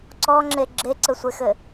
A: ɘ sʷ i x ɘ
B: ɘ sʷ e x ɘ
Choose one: B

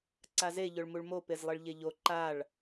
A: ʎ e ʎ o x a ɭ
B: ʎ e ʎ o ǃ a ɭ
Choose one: B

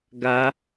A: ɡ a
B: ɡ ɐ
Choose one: A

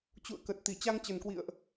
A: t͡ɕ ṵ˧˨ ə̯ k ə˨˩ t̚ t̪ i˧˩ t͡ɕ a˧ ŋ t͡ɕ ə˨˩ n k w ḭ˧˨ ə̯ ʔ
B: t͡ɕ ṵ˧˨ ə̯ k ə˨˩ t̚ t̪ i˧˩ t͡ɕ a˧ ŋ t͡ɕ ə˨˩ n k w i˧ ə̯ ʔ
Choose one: A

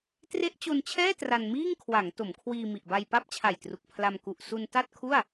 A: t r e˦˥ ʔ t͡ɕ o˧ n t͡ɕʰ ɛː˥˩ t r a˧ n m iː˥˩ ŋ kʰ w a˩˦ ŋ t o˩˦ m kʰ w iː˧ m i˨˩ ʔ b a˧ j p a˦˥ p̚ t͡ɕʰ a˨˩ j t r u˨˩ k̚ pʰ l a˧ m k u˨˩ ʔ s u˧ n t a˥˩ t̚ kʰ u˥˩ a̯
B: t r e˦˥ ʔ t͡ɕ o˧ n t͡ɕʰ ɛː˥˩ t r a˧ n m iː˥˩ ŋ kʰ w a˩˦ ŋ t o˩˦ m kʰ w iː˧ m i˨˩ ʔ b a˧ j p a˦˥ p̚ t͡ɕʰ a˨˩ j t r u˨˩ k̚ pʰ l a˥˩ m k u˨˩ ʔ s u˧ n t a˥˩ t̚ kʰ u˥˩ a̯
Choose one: A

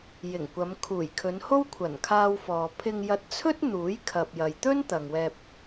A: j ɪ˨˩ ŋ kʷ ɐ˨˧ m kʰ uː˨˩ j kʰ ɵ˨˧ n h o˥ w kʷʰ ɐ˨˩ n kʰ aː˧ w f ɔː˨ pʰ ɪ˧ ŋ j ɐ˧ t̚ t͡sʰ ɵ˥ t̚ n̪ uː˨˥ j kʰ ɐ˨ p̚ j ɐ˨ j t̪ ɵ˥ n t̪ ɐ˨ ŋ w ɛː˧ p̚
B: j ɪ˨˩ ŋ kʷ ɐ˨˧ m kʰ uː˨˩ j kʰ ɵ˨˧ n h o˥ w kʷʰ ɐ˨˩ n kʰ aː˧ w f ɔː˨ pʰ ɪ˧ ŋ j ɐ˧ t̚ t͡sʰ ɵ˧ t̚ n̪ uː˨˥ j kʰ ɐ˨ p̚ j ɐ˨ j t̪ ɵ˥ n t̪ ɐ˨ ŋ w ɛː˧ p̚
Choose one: A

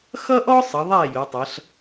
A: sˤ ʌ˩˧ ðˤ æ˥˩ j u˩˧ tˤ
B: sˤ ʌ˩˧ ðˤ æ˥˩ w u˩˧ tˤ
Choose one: A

